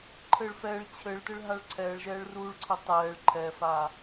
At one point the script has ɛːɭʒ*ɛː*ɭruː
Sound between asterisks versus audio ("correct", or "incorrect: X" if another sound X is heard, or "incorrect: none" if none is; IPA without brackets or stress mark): correct